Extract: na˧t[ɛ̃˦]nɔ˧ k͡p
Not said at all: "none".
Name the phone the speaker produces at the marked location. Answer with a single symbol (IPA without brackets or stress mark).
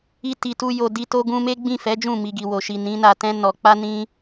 ɛ̃˦